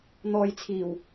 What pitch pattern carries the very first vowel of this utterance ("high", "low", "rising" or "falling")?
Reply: low